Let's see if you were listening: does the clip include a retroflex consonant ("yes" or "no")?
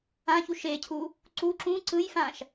no